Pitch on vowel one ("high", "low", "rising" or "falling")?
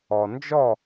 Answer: low